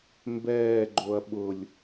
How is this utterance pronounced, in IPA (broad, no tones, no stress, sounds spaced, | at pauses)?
m b ɛː ɡ͡ǃ o ɐ̯ ɓ ʊ lʲ